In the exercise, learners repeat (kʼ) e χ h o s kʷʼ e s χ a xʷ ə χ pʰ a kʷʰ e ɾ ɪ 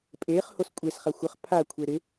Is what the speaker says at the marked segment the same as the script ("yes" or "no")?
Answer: no